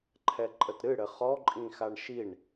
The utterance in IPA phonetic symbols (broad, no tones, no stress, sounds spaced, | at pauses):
ǃʰ ɛ ǃʼ ə t ɾ ɨ ɽ ɘ χ ɔ ǃʼ ĩ x a ɳ ʃ i ɳ